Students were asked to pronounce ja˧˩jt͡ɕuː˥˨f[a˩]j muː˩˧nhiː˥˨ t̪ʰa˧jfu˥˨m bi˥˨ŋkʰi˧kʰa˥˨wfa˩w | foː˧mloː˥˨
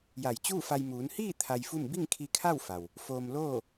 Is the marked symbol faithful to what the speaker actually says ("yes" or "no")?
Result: no